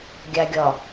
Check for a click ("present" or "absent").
absent